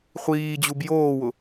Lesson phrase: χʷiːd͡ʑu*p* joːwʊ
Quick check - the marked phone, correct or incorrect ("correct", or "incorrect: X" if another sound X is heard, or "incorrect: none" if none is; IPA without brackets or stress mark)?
incorrect: b